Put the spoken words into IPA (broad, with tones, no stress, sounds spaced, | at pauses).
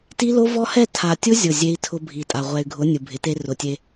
t i˦ l o˦ v ɔ˦ h ɛ˦˨ tʰ a˨ tʲ ʊ˦ zʲ ʊ˦˨ zʲ e˦ i̯ tʰ ʊ˦ bʱ i˨ tʼ a˨ ʁʷ ɛ˨ y̯ ɡʱ ʊ˨˦ nʲ u˨ bʱ ɪ˨˦ t e˦ r ʊ˨ tʲ e˦